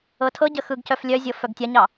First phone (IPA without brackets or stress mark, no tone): ɤ